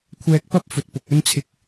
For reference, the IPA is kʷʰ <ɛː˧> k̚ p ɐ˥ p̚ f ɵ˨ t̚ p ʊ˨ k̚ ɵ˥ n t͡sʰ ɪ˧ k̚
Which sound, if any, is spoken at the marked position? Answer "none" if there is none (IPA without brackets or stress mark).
ɛː˧